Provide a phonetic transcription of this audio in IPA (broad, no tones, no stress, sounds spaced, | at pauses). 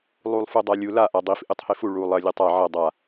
lˠ u lˠ f u dˤ a lʲ u l a ʔ a dˤ i f ʔ ɨ tˤ h e f u ɭ u lˠ ɐ lʲ ɨ tˤ a ʕ ɐ dˤ a